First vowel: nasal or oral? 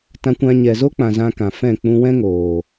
nasal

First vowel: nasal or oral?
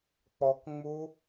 oral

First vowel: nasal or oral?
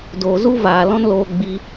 oral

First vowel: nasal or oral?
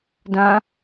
nasal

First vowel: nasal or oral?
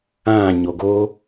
nasal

